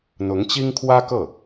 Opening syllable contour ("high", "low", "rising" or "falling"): rising